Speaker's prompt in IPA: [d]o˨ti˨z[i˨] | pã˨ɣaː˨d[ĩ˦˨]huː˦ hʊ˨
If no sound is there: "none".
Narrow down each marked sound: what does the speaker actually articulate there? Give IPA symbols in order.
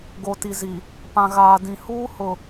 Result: ɡ, i˨, ĩ˨

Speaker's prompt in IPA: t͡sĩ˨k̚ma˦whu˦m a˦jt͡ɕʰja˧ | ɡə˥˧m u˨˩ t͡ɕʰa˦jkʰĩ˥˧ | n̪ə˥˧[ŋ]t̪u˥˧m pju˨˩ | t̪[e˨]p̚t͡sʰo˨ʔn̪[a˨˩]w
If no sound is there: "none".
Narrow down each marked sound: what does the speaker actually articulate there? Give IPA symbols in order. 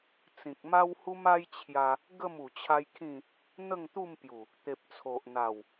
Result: ŋ, e˨, a˨˩

